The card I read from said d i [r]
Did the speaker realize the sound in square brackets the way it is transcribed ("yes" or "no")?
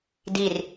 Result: yes